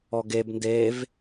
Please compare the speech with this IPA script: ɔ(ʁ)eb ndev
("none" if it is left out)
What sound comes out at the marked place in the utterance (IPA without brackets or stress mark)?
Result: ɡ